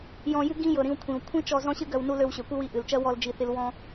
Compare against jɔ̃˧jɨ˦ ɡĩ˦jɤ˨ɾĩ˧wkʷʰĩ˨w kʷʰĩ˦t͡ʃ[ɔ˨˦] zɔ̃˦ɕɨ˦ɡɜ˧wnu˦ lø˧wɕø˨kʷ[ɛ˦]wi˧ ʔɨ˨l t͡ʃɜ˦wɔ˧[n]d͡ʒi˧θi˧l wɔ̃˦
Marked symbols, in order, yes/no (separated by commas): no, no, no